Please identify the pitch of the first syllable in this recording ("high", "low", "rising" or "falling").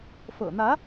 low